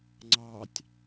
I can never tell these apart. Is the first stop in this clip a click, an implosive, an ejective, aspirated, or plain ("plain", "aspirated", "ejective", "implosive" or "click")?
click